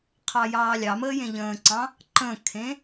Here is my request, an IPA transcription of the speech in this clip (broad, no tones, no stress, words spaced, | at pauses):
qʰɑjɑːlʲɑməː jẽʎə̃ːǀɑ̃ | ǃə̃kʰẽ